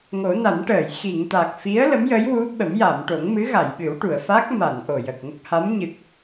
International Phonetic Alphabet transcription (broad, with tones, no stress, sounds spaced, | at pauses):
ŋ o˨˩˦ n a˨˩˦ n ʈ əː˨˩˨ j x i˨˩˨ ŋ t̪ a˨˩ k̚ f i˧˥ ə̯ l ə˧˥ m j ə˧˥ j w u˧˥ ɓ ə˨˩˦ m j a˨˩˨ m ʈ o˨˩˦ ŋ m ɨ˧˥ ɣ a˨˩˨ j ɓ ɨ˨˩˦ w ʈ u˨˩˨ ə̯ f a˦˥ k̚ m a˨˩˨ n ʔ o˨˩ j əː˨˩ k̚ ŋ ə˦˥ k̚ h a˧˥ m ɲ ɨ˨˩ k̚